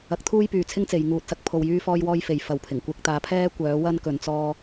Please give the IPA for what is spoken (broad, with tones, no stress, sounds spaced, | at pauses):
ɐ˨˥ k̚ t̪ʰ uː˥ j p yː˨ t͡sʰ ɪ˥ ŋ t͡s e˨ j ŋ uː˧ t̚ s ɐ˥ k̚ pʰ o˧ w j yː˥ f ɔː˥ j w ɔː˥ j f e˨ j f ɐ˨˧ w pʰ ɪ˨˩ ŋ kʷ ɪ˧ k̚ t̪ aː˨˥ pʰ ɛː˥ kʷ œː˨˥ w ɐ˥ n k ɵ˨˧ n t͡s ɔː˥